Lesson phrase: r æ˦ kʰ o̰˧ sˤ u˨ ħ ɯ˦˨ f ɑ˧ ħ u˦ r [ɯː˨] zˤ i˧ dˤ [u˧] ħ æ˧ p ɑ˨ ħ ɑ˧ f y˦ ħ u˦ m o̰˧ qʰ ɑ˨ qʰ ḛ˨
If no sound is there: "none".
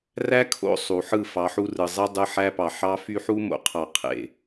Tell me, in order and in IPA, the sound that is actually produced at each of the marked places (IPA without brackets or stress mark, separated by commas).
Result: ɯ˨, ɯ˧